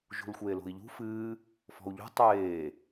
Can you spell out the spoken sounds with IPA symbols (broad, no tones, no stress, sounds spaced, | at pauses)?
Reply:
ʒ ṳ l xʷ eː l o̤ i̯ ʎ ṳ f ɨː | f ɔ̤ u̯ ʎ ṳ tˤ eː